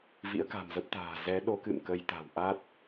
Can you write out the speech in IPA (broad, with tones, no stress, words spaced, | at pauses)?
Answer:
vḭ˧˥ə̯ka̤˨˩mzə˦˥p̚t̪a̤ː˨˩ zɛ˨˦ɗo˨˦kɨ̰˧˨m kə˧jt̪a̤˨˩w ʔa˦˥t̚